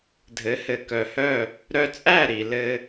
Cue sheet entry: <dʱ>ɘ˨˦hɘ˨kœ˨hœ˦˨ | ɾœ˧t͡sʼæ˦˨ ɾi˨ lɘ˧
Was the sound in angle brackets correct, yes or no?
yes